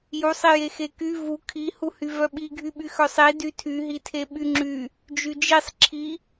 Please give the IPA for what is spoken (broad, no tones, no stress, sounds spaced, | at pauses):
j u sˤ i j e x e k y v u kʰ i h u h y v œ ɓ i ɡʱ y ɓ y x œ sˤ i d y tʰ y ɦ i tʰ e ɓ y ŋ͡ǁ y | d͡ʒ y d͡ʒ i sˤ ǁʰ i